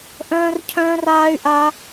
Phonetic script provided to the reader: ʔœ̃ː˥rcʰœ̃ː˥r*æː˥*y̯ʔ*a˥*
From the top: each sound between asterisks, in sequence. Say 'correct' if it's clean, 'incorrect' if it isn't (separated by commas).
incorrect, correct